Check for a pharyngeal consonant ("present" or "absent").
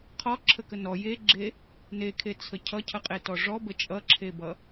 absent